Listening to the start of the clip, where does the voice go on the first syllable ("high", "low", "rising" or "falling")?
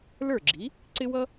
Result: falling